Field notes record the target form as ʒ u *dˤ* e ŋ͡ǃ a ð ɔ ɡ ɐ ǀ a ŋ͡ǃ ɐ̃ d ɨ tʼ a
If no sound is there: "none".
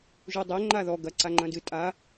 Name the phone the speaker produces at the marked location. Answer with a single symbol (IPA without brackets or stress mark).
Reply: dˤ